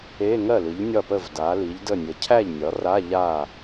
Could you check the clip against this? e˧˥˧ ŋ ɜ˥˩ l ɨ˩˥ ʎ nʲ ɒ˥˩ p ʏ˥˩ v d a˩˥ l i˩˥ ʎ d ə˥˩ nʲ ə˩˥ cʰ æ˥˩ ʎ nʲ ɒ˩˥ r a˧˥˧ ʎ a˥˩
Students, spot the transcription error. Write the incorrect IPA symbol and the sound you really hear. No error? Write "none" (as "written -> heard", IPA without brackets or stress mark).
ʏ˥˩ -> ə˥˩